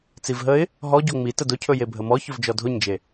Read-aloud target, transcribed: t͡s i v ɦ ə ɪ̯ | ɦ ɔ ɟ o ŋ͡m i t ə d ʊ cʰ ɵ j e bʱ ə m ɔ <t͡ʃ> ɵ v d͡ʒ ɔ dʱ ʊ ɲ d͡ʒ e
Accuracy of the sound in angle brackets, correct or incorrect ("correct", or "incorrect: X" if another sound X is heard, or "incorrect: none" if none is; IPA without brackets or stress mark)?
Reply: incorrect: ç